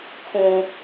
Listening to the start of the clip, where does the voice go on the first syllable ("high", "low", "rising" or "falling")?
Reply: low